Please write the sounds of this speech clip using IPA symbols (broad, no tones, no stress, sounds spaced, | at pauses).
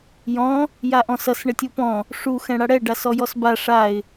j ɔ̃ | j a ʔ ɔ̃ s ʌ s ɳ ɘ tʲ u p ɔ̃ | ʂ u x ɛ̃ ɽ a ɽ ɛ ɖ a s ɔ j ɔ s b a ʂ a ɪ̯